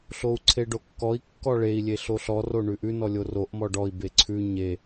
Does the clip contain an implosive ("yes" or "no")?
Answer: no